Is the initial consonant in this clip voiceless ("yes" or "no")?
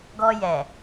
no